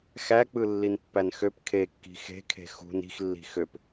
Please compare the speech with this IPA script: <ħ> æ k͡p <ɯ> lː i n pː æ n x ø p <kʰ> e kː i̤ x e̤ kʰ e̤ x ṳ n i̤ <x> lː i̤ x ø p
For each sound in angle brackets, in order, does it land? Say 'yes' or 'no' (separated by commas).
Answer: no, yes, yes, yes